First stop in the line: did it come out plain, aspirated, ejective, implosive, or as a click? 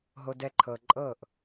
plain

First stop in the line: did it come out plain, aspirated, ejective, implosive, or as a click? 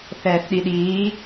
implosive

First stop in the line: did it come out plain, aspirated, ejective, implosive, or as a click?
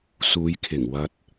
aspirated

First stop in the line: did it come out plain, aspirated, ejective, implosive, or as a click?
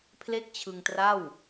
aspirated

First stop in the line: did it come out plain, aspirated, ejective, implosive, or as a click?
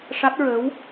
plain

